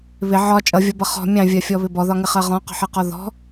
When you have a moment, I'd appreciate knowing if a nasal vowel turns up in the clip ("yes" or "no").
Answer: yes